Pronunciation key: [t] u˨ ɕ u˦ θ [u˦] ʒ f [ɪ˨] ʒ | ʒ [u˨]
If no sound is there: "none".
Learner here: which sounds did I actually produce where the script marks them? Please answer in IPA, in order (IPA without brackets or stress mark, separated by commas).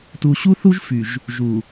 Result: t, u˦, y˨, u˨